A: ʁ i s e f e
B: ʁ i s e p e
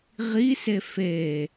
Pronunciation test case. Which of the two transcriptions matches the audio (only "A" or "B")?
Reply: A